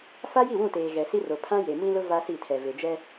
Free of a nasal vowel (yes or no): no